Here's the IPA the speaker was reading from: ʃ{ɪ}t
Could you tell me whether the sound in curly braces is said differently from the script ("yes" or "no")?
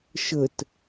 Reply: yes